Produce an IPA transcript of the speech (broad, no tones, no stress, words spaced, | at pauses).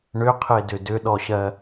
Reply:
ɳʏqʰedʏ dʏɗɔɕɜ